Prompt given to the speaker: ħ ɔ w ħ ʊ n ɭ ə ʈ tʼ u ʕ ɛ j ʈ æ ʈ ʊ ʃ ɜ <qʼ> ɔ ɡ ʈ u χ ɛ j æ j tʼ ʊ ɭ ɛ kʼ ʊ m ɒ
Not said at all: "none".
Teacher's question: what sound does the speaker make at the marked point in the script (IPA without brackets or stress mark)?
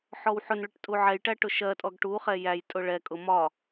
tʼ